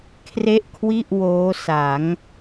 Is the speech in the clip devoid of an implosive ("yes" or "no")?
yes